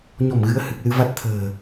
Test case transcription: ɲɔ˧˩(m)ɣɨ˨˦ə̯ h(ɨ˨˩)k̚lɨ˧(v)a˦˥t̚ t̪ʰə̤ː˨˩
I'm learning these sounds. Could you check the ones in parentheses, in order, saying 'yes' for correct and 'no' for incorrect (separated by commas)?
yes, yes, yes